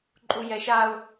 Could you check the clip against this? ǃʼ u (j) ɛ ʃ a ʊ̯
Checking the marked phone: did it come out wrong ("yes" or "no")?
no